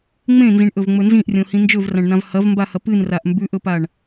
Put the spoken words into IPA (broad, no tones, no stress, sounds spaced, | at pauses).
ŋ͡m ẽ n z ĩ ɳ ʔ ɵ v ŋ͡m ɵ n z ĩ ʔ rʲ õ h ĩ n d͡ʒ ɵ v r ã ɳ n ã v h ɐ v m b a h ɐ p ɨ n r a ʔ m b ʉ ʔ ɵ p a ɳ